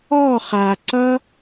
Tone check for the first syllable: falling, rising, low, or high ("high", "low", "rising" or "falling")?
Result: falling